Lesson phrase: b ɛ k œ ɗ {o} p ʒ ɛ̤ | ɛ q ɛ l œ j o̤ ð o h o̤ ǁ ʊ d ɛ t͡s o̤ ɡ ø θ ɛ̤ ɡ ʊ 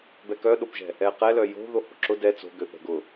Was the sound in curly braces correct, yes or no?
yes